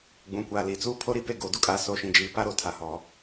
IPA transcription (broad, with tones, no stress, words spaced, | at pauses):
ɡ͡bũ˨kʷaː˨li˨t͡suː˦ pʰo˦ɾi˦pe˦˨ ɡoː˨du˦kʼaː˨ so˨˦ʃĩ˨d͡ʒiː˨ pa˦ɾo˨tʰa˨ hɔ˨